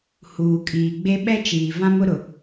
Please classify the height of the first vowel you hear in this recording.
high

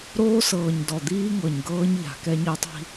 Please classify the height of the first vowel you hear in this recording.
mid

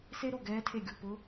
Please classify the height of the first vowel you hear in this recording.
mid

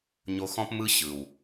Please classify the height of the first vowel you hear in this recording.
mid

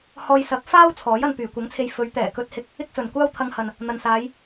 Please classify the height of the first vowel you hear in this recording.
mid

